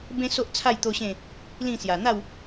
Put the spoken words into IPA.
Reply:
b ẽ˦ s o˦ ʔ t͡sʰ a˥˧ j t̪ o˦ ɕ ẽ˥˧ | l ĩ˥˧ s j a˨˩ n̪ a˥˧ w

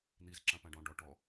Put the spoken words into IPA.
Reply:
n̪ i z ǁ ã p ã ɖ ɔ̃ ɖ ɔ ʈ ɔ

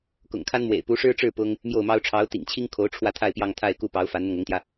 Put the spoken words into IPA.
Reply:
k ʊ̰˨˩ ŋ kʰ a˥ n m w ḛ˨˩ ɪ̯ p u˧˥ ʂ ɻ̩˥ ʈ͡ʂ ɻ̩˥˩ p ʊ˥ ŋ | m j o˥˩ ʊ̯ m ɑ˥ ʊ̯ ʈ͡ʂʰ ɑ˧˥ ʊ̯ t̪ ḭ˨˩ ŋ t͡ɕʰ i˥ ŋ kʰ o˧˥ ʊ̯ ʈ͡ʂʰ w ä˥˧ t̪ʰ a˥˧ ɪ̯ p j ɑ˥˧ ŋ t̪ʰ a˥˧ ɪ̯ k u˥˩ p ɑ˧˥ ʊ̯ f a˧˥ n n̪ ɤ˧ ŋ ʊ˧˥ ŋ t̪ j ä˧

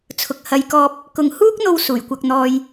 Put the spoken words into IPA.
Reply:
t͡sʰ ʊ˨ k̚ h ɐ˧ j k ɔː˧ p̚ | k ʊ˨ ŋ h uː˥ k̚ n̪ o˧ w s uː˨˩ j kʷ ɐ˧ k̚ n̪ ɔː˧ j

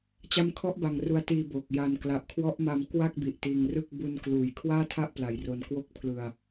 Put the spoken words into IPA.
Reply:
t͡ɕ a˦˥ m kʰ ɔ˦˥ ʔ b a˧ ŋ r u˧ a̯ t iː˧ b o˨˩ k̚ j a˧ n k l a˨˩ ʔ kʰ w ɔ˦˥ ʔ m a˧ m k w a˥˩ k̚ b i˨˩ ʔ t iː˧ ŋ r ɯ˥˩ k̚ b u˧ n k l uː˨˩ j kʰ w aː˥˩ tʰ a˥˩ ʔ p l a˨˩ j r o˨˩ n k w o˥˩ k̚ pʰ l ɯ˧ a̯

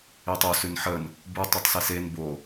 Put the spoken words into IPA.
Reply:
i tˤ u s ʉ n ħ ə n | b u tˤ ʉ tˤ s i s e n b o

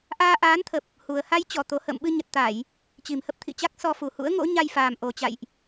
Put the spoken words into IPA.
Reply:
ʔ aː˧ ʔ aː˨˦ n t̪ʰ ə˨˩ p̚ | h u˨˩ ə̯ h a˧ j t͡ɕ ɔ˧˩ t̪ o˨˩ h ə̰ː˧˨ m ɓ ɨ˧ ɲ ə˨˩ t̚ t̪ a˧˩˨ j | t͡ɕ i˨˩ m h ə˦˥ p̚ t̪ʰ ḭ˧˨ t͡ɕ a˦˥ k̚ s ɔ˧ f u˨˩ h ṵ˧˥ ə̯ ŋ o̰˧˥ ɲ a˧ j f aː˨˩ m ʔ o˨˩ t͡ɕ a̰˧˨ j ʔ

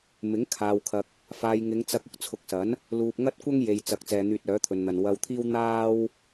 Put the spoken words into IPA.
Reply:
m ɪ˨˥ ŋ kʰ aː˨ w kʰ ɐ˨ k̚ | f aː˧ j ŋ ɪ˨˧ ŋ t͡s ɐ˧ k̚ ʊ˨ k̚ t͡sʰ ʊ˨˥ k̚ s ɐ˨˥ n | l uː˨ p̚ ŋ ɐ˥ t̚ kʷ ɐ˥ ŋ j e˨ j t͡s ɐ˨ k̚ t͡s ɛː˨ n̪ yː˧ t̚ œː˨˥ t̪ʰ ɵ˨ n n̪ ɐ˨ n w ɐ˧ w t̪ʰ iː˥ w n̪ aː˥ w

